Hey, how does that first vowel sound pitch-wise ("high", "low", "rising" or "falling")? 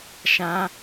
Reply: high